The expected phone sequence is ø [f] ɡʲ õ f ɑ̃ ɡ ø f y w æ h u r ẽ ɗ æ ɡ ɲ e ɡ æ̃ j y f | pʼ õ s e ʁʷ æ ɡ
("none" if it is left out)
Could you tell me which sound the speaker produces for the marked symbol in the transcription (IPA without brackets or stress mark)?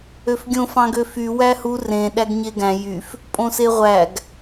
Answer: f